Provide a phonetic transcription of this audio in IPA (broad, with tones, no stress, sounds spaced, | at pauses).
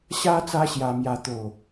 ɕ a˦ t͡s a˦ ɕ j a˧ m j a˧ t̪ o˨˩